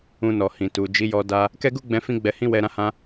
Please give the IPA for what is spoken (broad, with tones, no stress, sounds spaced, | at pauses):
ũ˧ n ɔ˨ h ĩ˨ t u˨ d͡ʒ i˨˦ j ɔ˧ d a˦ | k ɛ˦ ɡ u˦ ɡ͡b ɛ̃˧ f ĩ˦ ɡ͡b ɛ˧ h ĩ˦ w ɛ˧ ɾ ã˦ h ã˦